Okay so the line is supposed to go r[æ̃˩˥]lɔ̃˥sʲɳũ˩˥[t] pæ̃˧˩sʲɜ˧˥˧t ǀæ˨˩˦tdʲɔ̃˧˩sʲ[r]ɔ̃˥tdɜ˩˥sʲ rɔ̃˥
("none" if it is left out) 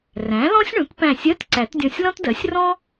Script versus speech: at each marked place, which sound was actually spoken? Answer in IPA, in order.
æ̃˩˥, t, l

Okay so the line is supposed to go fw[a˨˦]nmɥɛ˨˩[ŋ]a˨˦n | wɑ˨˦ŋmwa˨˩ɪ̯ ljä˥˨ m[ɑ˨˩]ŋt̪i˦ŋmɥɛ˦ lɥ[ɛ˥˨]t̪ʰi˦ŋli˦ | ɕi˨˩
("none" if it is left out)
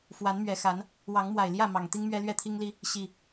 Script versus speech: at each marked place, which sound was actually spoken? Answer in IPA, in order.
a˨˦, x, ɑ˨˩, ɛ˥˨

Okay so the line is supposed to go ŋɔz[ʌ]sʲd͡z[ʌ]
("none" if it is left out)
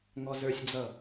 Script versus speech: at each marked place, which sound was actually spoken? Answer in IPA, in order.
ə˞, ʌ

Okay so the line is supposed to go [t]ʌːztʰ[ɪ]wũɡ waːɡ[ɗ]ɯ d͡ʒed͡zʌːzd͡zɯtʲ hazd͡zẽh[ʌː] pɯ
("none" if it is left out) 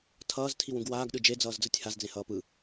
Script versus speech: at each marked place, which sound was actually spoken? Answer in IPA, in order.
tʰ, i, ɗ, ʌː

